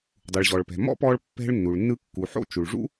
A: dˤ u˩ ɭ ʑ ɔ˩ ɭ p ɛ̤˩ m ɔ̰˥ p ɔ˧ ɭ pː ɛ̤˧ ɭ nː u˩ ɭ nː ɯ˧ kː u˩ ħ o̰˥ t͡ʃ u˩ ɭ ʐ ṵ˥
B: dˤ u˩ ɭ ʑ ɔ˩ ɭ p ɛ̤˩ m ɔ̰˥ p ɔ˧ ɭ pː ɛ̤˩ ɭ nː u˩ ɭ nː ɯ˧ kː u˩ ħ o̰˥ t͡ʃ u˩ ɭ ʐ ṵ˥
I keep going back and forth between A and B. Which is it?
A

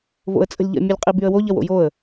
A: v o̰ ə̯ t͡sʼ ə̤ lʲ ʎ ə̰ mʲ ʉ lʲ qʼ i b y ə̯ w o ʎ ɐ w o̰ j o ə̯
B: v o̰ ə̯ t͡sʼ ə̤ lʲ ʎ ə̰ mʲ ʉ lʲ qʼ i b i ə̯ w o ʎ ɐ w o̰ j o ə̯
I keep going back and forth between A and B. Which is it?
A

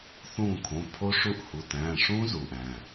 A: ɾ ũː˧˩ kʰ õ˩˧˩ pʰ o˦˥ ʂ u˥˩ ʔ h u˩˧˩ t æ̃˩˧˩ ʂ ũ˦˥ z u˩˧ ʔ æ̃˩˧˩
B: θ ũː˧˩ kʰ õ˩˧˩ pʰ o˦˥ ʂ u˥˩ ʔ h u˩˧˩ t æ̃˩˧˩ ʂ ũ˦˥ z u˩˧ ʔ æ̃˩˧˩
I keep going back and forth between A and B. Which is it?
B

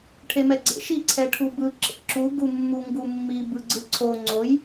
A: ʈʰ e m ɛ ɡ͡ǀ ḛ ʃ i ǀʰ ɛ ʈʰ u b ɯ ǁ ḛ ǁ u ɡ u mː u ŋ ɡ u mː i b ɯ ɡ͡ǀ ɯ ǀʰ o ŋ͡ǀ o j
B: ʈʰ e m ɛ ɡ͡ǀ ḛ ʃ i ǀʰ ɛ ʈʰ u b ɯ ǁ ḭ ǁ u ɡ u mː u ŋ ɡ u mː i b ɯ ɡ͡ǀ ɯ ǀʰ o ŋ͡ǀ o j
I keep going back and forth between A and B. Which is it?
A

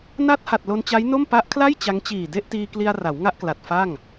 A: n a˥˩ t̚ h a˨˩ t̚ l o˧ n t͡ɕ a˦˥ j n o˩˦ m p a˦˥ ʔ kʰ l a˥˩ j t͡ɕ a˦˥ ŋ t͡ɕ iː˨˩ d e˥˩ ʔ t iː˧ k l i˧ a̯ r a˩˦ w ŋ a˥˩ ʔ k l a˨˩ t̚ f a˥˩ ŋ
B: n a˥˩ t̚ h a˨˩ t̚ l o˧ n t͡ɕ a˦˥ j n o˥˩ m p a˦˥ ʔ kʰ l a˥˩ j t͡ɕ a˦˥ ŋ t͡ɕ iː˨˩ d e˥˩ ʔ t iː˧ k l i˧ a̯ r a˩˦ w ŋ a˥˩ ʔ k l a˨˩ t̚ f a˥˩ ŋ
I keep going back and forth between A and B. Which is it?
B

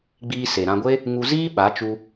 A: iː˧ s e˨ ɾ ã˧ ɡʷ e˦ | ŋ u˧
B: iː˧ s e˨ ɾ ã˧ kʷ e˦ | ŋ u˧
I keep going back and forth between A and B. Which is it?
A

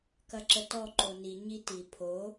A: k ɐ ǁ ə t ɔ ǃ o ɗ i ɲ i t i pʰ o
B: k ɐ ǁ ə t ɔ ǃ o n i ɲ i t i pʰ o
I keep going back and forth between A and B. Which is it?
B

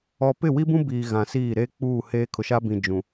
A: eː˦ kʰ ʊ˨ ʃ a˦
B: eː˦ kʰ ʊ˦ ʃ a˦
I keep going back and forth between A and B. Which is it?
A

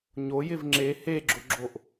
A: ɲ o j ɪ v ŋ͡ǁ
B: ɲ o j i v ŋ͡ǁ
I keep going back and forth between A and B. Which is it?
A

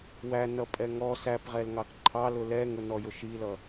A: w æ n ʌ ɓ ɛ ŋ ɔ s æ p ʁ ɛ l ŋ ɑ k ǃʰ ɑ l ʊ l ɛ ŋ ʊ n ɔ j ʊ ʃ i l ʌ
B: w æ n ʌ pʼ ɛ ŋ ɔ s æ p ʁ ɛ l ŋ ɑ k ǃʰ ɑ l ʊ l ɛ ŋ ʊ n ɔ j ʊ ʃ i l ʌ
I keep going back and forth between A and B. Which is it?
B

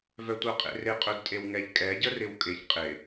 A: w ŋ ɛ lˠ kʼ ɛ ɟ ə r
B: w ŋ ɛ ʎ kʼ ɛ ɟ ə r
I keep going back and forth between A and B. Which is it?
B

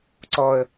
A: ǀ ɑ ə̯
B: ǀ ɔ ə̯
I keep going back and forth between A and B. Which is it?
B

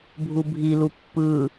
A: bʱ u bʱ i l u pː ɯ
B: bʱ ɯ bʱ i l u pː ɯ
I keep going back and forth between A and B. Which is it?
A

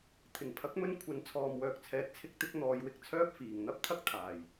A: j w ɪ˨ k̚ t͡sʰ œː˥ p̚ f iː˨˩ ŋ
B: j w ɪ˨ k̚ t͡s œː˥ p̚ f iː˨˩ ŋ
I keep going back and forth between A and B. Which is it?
A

